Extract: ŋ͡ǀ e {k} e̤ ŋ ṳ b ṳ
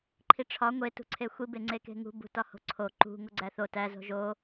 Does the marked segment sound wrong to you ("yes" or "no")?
no